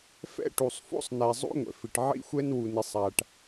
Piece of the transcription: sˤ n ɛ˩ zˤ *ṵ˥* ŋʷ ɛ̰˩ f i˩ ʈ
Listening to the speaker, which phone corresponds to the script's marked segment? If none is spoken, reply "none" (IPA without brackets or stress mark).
ṵ˥